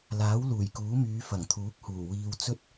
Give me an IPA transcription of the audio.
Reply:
l aː˨˥ w l uː˨˩ j k uː˨˥ m yː˨˧ f ɐ˨˩ ŋ t̪ʰ uː˨˥ k̚ h uː˨˩ w iː˧ w t͡s ɵ˥ t̚

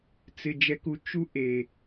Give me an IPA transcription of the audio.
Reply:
t͡s ɪ˨ d͡ʒ ɛ˧ k u˨ t͡ʃ u˦ ʔ e˨

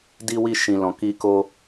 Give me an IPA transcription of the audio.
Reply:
d i˦ w i˦ ʃ ĩ˧ l ɔ̃˧ k i˦ k o˦

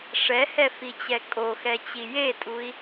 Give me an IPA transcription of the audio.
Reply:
ʂ ɛ h ɛ f i t͡ɕ ɛ kʼ o x ɛ t͡ɕ i j e tʼ u i̯

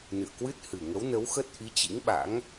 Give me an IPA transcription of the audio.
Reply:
n ɨ̰˧˨ ə̯ k w ɨ˦˥ t̚ h ɨ˨˩ ŋ ə˨˦ w n ə˨˦ w x ə˦˥ t̚ ʔ i˨˦ t͡ɕ ḭ˧˥ ŋ ɓ a̰˧˥ ŋ

